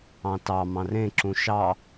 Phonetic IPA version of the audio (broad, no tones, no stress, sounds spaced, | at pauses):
ɑ̃ t ɑ m ɑ̃ r ẽ ǁ ũ ʃ ɑ